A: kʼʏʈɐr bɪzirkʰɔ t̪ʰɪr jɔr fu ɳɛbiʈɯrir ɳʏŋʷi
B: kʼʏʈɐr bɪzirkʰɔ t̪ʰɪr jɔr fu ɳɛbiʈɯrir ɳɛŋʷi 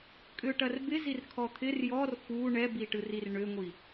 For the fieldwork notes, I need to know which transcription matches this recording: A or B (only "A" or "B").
A